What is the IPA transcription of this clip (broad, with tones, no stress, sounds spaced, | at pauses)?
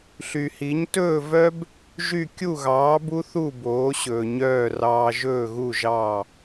ɬ y˩ h i˩˥ ɲ t ɵː˥˩ v œ˥ b | ʒ y˥˩ kʲ u˥˩ ɣ ɑː˩˥ b u˥ θ u˥˩ b oː˩˥ ɕ ɵː˩ ɲ œː˥˩ r ɑː˧ ʒ ɵː˥˩ ɣ u˥˩ ʒ ɑ˥˩